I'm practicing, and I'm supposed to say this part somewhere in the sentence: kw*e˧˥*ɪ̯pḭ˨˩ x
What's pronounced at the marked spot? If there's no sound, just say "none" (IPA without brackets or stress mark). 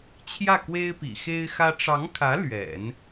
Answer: e˥